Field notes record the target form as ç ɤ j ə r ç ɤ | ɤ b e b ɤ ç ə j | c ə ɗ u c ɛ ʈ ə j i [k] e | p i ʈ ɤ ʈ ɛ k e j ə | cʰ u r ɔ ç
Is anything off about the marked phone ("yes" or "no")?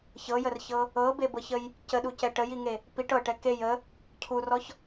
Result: yes